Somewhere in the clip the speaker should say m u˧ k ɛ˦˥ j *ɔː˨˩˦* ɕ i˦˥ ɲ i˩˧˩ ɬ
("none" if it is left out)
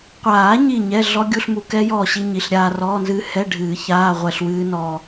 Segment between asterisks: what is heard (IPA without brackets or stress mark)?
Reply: ɔː˥˨